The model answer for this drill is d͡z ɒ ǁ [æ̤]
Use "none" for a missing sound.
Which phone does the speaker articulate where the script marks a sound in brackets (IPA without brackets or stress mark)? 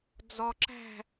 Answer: æ̤